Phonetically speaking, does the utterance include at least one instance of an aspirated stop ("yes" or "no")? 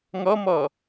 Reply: no